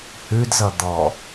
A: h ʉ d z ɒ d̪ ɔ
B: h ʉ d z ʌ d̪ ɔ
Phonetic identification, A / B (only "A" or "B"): B